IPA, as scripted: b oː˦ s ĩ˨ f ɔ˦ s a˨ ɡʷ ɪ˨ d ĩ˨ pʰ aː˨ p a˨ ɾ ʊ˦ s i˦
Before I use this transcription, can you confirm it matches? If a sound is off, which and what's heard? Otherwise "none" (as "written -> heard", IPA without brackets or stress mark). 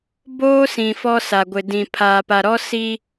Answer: ʊ˦ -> ɔ˦